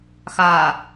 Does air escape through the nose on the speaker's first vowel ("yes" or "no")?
no